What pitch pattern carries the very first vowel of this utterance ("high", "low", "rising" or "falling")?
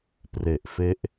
low